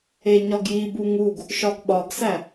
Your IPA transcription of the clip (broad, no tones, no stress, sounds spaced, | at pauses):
e ɲ ɒ ɡ j i b u ŋ u ɡ | ʃ ɒ ɡ ɓ ɒ ɡ s æ